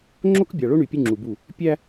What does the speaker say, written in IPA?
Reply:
ŋ͡ǁ o˦ k bʲ ɑ˨ ɭ o˦ ɳ y˨ pʲ ʉ˦ ŋ͡ǁ u˨ b u˦˨ | pʲ æ˦

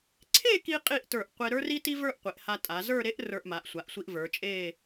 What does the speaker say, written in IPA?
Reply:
ǀʰ e˥˧ k i˧ qʼ i˥˧ ʔ t ə˞˧˩ ʔ qʷ e˧ ɾ ə˞˥ r i˥ t i˥ v ə˞˥˧ ʔ qʷ e˩˧ ʔ h a˧ tʼ a˩˧ z ə˞˥˧ ɾ e˥ ʔ r ə˞˧ ʔ m a˩˧ ʔ sʷ a˩˧ ʔ sʷ i˧ ʔ v ə˞˩˧ t͡ʃʼ e˥˧

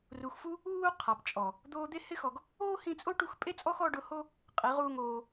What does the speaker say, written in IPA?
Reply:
r u˨ x f u˦ | uː˦ qʰ a˨ p t͡ʃʼ ɔ˨ | d̪ oː˧ d̪ e˦ h ɪ˦ x ɔ˨ ɡ | oː˦ h ĩ˧ t͡sʼ o˦ ʈ u˧ x pʼ e˦ t͡sʼ ɔ˦ x ɔ˧ ɖ ʊ˧ h o˦ | qʼ i˨˦ ʁ uː˦ ŋ oː˧

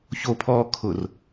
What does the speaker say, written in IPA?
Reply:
ç o pʰ ɔː kʰ ʊ r

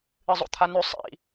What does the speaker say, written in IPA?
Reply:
ɨ zˤ o̰ t̪ʰ a n ʉ sˤ ḭ

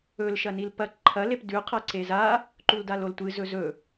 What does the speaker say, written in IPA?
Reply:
ɵ l ʃ ɐ n i l p ɐ ǃʰ ɐ l e p d ʉ qʰ ɐ ǀ e z a | ǃ u l d a l o l tʷ ɨ z ɵ z ɵ

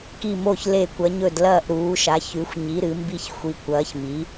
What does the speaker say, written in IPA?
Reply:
k i˧˩ m o˧˩ ç l e˧˩ kʷ ɐ˩˧ ɲ ɵ˧˩ d l ɐː˧˩ ʔ ɾ uː˩˧ ʃ a˩˧ ç ʉ˩˧ xʷ ɲ i˩˧ ɾ ɨ˩˧ m b i˧˩ ç xʷ i˩˧ kʷ ɐː˩˧ ç m i˩˧

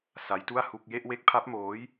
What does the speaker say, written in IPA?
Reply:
s a˦˥ j t u˥˩ a̯ h u˥˩ k̚ j e˥˩ ʔ w e˦˥ k̚ pʰ a˦˥ p̚ m oː˦˥ j

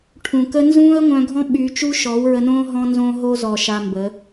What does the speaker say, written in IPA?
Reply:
ʈʰ ũ˨ k ə˦ n z ũː˦ ə̯ ŋʷ œ̃˧ ɡʱ ɔ̃˦ ɓ y˧ t͡ʃ u˦ ʃ ɔ˨˦ w ɹ ə˧ n õː˦ ɦ ɔ̃˧ n z õː˧ ɦ o˧ z ɔ˨ ʃ a˧ m b ə˨˦

